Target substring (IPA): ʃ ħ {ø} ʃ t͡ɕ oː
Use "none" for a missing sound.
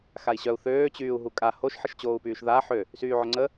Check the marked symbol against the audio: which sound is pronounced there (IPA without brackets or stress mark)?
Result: ə